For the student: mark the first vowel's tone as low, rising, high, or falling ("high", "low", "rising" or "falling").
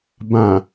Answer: low